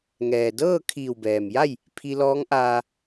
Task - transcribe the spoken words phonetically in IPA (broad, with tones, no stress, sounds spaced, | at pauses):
ŋ ɛː˩ d ɤː˥˨ kʰ iː˧˩ w b ɛː˩ m j a˥˨ j | pʰ i˧ l ɔː˧˥ ŋ ʔ aː˧